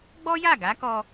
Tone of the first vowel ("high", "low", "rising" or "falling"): high